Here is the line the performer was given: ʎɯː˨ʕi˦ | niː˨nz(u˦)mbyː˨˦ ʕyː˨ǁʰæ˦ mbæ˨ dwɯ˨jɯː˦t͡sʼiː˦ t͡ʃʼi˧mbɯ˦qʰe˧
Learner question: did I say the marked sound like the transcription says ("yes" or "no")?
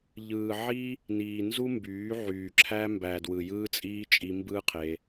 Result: yes